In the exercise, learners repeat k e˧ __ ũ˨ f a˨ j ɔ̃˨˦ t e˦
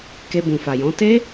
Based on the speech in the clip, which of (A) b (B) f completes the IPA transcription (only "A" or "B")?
A